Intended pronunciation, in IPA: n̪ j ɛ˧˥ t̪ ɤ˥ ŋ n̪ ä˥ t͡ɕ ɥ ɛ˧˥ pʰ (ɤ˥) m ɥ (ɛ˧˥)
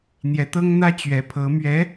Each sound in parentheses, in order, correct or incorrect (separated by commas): incorrect, correct